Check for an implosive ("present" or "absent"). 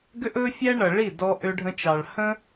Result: absent